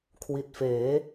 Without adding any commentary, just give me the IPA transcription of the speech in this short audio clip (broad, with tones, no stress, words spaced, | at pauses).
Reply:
kʰwi˨˩t̚feː˩˦